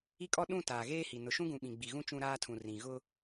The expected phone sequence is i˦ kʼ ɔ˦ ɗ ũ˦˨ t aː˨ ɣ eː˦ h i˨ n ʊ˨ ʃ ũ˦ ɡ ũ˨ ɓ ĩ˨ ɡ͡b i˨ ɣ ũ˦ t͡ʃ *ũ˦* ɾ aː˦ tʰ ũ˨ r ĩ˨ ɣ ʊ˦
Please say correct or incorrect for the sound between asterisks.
correct